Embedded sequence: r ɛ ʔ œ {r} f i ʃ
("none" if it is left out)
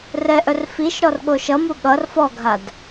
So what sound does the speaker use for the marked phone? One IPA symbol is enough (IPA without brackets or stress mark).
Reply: r